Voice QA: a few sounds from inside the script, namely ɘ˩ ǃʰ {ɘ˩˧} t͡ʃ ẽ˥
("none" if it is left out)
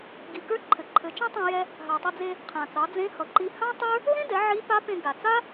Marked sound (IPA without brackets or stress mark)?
ɘ˩˧